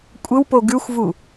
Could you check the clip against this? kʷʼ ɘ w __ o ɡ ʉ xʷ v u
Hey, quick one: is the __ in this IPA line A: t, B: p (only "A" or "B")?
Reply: B